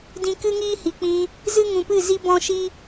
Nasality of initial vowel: nasal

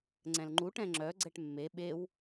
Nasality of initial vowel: nasal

